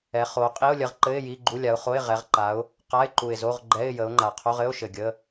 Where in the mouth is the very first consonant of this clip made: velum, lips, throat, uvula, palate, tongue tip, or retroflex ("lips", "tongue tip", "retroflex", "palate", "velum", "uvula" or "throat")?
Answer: uvula